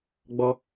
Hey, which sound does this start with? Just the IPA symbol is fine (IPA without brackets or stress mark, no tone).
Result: ɡ͡b